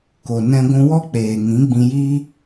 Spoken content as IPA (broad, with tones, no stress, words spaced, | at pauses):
ko˨ nɛ̃˧ɡʷũ˧wɔ˦k͡peː˨ ŋĩ˨˦ɡ͡bĩ˧ji˦